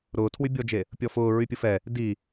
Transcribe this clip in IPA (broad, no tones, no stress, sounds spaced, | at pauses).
ɾ ʊː tʰ w y bʲ ɔ d͡ʒ e | pʲ ɔ f ʊː ɹ y pʲ ʊ f ɛ | d i